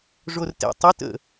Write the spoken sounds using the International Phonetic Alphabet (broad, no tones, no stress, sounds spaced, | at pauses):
ʐ o r t ɛ̰ tˤ ɵ t ə̰